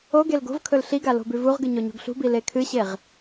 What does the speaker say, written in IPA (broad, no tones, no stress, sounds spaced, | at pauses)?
o ɡ e l ɡ o̤ v kʰ ɵ l ɬ i ɡ a l o̤ b ʉ v u ʁ ɡ ɨ ɲ o ɲ o̤ ɡ ɬ ṳ b i l e kʰ ɨ ɕ e ʁ